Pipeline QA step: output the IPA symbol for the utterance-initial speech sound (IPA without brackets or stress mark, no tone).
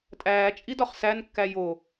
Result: tʼ